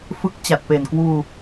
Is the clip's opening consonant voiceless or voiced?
voiceless